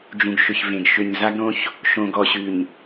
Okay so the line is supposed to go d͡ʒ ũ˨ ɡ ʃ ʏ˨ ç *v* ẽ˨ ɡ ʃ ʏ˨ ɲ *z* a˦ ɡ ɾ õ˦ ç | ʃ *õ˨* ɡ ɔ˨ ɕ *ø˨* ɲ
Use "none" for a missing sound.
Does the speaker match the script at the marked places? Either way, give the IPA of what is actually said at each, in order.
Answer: v, z, õ˨, ʉ˨

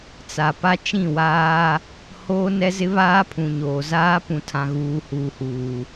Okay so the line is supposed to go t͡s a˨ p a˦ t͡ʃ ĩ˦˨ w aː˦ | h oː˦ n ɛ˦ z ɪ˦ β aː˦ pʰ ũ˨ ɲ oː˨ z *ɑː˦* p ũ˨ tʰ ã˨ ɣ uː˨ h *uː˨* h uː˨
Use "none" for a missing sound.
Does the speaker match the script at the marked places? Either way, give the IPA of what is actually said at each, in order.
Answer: aː˦, uː˨

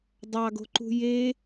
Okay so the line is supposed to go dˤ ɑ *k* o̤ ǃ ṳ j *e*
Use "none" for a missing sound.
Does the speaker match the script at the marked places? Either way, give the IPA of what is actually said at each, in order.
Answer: ɡ, e

